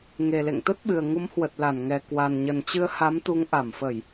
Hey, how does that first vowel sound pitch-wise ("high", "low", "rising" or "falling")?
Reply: low